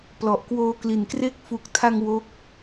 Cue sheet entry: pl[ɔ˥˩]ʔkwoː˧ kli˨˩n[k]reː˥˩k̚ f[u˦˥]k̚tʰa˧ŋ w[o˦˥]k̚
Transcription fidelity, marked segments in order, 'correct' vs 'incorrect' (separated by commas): incorrect, correct, incorrect, correct